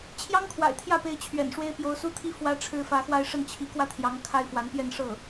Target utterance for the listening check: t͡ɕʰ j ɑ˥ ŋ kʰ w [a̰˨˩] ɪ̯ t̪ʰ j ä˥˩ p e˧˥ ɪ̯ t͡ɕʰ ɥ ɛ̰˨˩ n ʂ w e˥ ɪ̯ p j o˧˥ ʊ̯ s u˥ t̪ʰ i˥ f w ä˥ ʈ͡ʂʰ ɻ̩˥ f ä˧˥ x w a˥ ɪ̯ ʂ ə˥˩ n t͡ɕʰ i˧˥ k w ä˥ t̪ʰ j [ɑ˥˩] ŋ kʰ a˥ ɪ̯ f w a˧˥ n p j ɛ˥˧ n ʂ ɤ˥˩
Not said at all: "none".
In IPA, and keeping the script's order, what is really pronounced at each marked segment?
a̰˨˩, ɑ˧˥

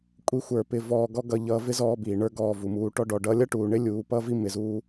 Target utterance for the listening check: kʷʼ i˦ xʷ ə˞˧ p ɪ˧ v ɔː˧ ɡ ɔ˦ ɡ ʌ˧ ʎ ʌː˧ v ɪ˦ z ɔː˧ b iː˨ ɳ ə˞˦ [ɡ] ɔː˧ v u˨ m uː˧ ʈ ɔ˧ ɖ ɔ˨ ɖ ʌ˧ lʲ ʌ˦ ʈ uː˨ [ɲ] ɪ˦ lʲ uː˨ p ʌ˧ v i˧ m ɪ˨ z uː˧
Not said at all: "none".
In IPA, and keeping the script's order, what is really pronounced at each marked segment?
ɡ, ɳ

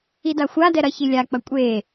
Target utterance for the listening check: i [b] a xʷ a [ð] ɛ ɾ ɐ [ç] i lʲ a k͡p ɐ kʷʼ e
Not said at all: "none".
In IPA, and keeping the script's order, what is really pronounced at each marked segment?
d, d, ç

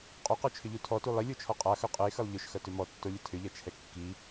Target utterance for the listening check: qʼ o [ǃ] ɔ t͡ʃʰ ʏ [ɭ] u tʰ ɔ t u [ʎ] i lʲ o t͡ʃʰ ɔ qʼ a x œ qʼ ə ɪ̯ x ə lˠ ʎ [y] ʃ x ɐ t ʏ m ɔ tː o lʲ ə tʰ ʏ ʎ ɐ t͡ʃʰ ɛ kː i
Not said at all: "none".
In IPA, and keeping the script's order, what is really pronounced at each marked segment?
q, ʎ, lˠ, ʏ

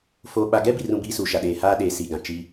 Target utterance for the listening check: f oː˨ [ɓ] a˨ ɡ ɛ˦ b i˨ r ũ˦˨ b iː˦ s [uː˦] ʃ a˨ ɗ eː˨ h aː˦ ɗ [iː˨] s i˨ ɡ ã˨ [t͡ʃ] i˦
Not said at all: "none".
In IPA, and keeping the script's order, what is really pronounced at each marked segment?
ɓ, uː˨, eː˨, t͡ʃ

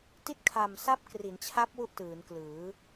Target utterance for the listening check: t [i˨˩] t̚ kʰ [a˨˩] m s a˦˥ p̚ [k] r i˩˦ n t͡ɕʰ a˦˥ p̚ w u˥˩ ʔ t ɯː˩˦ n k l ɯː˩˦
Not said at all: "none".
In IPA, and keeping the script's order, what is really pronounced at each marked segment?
i˦˥, a˨˩, k

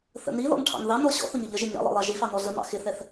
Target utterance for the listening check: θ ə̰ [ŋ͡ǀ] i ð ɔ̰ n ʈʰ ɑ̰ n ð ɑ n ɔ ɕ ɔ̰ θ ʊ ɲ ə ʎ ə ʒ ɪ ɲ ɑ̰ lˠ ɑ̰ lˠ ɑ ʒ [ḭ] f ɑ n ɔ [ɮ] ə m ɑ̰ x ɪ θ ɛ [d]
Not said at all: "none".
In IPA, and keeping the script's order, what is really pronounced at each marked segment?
n, i, ɮ, θ

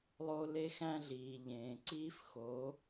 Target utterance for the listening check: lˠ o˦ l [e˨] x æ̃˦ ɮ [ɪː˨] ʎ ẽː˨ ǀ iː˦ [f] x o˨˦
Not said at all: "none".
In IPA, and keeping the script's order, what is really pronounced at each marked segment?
e˦, iː˨, f

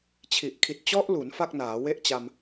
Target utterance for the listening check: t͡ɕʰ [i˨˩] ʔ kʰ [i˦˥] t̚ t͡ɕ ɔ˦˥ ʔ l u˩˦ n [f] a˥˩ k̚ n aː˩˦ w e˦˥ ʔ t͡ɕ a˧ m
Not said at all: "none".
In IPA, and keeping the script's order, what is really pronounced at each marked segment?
i˨˩, i˨˩, f

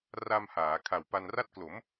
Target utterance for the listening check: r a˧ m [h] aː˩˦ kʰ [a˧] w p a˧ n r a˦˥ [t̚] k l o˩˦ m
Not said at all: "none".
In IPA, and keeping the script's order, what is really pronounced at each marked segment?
h, a˨˩, t̚

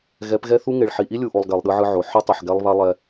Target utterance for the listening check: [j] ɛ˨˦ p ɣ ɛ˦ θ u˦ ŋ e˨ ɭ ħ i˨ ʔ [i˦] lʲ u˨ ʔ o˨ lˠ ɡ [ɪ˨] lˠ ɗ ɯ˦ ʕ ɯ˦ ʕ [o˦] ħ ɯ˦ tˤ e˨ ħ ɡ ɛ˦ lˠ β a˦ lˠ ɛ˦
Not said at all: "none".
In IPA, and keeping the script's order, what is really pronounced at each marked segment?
ɣ, i˦, ɛ˨, o˨

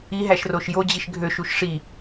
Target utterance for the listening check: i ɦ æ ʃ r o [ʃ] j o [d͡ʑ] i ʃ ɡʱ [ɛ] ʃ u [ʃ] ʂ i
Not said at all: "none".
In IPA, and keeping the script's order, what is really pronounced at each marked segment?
ʃ, d͡ʑ, ø, ʃ

